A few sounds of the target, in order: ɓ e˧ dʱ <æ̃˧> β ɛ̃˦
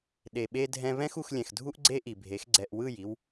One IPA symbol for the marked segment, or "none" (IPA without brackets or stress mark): ɛ̃˧